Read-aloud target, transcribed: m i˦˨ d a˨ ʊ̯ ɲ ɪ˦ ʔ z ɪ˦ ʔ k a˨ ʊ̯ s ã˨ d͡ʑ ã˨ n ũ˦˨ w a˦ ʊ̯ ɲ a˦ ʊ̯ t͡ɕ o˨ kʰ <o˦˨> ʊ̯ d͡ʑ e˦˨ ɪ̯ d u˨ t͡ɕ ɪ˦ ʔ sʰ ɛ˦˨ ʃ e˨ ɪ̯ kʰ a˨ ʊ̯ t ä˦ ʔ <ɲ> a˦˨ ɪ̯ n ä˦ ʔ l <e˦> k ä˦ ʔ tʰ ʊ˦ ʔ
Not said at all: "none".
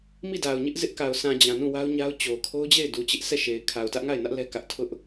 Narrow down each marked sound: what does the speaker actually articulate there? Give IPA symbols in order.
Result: o˦, ŋ, ɛ˦

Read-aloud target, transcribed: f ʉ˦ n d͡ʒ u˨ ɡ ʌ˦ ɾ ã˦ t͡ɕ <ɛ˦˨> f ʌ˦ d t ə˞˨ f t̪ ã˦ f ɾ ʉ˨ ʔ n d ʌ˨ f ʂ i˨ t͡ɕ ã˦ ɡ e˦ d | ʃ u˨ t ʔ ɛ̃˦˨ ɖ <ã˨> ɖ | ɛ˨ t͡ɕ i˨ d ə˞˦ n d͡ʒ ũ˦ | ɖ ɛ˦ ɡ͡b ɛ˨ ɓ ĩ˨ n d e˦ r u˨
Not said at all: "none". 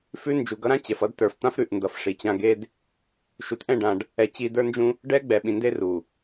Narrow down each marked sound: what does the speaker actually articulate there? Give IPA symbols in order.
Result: ɛ˨, ã˨

